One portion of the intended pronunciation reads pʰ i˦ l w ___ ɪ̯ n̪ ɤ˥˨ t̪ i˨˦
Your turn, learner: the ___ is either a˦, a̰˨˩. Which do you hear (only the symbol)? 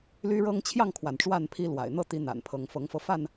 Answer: a̰˨˩